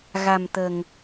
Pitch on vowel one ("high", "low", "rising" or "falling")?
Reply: low